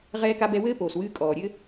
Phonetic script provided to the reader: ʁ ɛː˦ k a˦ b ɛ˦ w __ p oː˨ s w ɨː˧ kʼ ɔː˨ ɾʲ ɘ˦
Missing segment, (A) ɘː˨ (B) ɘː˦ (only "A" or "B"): B